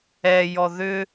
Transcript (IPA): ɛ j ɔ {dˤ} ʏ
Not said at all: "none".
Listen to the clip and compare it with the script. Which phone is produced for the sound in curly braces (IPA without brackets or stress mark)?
ð